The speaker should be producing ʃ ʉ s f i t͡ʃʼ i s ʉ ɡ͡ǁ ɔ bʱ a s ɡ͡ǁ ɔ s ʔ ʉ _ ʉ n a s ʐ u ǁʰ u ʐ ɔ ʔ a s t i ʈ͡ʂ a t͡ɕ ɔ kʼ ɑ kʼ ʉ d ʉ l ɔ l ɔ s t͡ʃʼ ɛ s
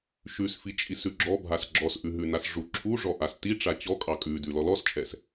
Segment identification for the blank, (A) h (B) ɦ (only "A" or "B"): B